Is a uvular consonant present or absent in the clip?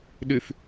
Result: absent